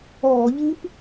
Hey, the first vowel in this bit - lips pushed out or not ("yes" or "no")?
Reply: yes